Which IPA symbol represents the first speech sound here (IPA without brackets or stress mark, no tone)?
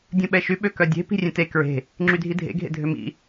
dʲ